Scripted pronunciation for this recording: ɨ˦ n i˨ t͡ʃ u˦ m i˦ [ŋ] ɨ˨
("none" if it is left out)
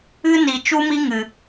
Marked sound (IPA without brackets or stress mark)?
ŋ